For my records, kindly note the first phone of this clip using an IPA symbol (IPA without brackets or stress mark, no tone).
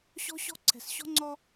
ɕ